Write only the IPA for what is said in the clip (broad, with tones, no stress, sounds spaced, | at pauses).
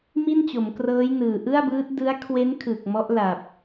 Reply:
m i˥˩ n t͡ɕ o˩˦ m k r ɤː˦˥ j n ɯː˨˩ ʔ ɯ˥˩ a̯ b ɯː˦˥ t̚ d ɯ˦˥ a̯ kʰ w e˦˥ n kʰ ɯ˨˩ k̚ m ɔ˦˥ ʔ l a˨˩ p̚